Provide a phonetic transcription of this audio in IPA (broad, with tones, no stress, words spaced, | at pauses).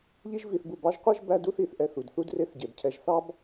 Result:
ʎi˦ʒ vi˧θbu˧bɑ˦ʒqʷe˦ʒ bæ˦du˦θi˧θ ʔɛ˧θu˨d θu˦dre˦θɟe˨bcʰɛ˧ʒ θɑ˦b